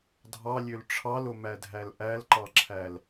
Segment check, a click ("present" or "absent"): present